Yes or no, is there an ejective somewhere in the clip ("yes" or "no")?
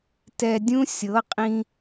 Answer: yes